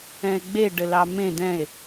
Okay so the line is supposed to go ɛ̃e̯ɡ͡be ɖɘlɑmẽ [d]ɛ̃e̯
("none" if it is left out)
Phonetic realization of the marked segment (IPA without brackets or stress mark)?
d